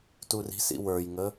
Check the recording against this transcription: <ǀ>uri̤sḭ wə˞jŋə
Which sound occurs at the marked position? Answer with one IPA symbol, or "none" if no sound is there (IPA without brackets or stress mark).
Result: t